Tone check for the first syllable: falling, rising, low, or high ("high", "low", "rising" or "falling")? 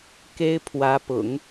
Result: high